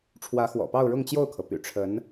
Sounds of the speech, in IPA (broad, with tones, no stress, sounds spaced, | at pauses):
ʈ͡ʂʰ w ä˧˥ x w ɔ̰˨˩ p ɑ˥˧ ʊ̯ ɻ ʊ˥˧ ŋ t͡ɕ j o˥˩ ʊ̯ kʰ ɤ˩ p y̰˨˩ ʈ͡ʂʰ ə˧˥ n